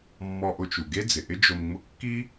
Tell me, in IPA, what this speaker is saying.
mː ɔ˧ ʔ ʊ˧ t͡ʃ u˩ ɡ e˥ d͡z ɪ˩ ʔ ɪ˥ d͡ʒ o˧ m ŋ͡m ʊ˥ kː i˥

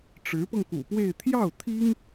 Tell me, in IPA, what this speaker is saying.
ʈ͡ʂ ɻ̩˧˥ p ɤ˧ ŋ k ṵ˨˩ p w e˥˧ ɪ̯ t̪ʰ j ɑ˥˩ ʊ̯ t̪ʰ i˥ ŋ

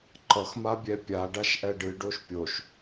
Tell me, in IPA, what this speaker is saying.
ǃ ʌ x m a bʲ ɛ pʲ a ɖ a ʃ ʔ ɛ ɖ ɨ ɖ o ʃ pʲ o ʃ

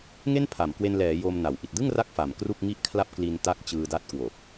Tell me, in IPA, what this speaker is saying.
ŋ e˥˩ n pʰ a˩˦ m k w e˧ n l ɛː˩˦ j o˧ m n a˩˦ w ʔ i˨˩ t̚ d ɯ˥˩ ŋ r a˦˥ k̚ f a˨˩ m k r u˥˩ k̚ ŋ i˥˩ ʔ kʰ l a˥˩ p̚ k l i˧ n t a˦˥ k̚ t͡ɕ ɯː˧ d a˦˥ t̚ k w o˨˩ k̚

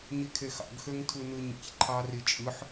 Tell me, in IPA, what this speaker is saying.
ɲ i kʰ e x ɑ̰ ɡ x ø ŋ tʰ u n ɯ ɲ ḭ ç ǃʰ ɑ r i t͡ʃʼ ɯ ħ

